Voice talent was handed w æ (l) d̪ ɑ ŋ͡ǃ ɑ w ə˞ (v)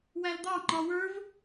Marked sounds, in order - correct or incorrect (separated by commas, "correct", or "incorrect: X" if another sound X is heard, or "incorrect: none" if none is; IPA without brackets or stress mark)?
correct, correct